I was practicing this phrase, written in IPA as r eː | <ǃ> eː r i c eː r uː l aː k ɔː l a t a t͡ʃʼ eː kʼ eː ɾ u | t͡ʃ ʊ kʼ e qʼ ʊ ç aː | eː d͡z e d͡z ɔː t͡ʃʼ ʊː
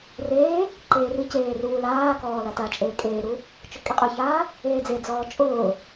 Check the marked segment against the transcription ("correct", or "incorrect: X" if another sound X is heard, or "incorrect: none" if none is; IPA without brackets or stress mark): correct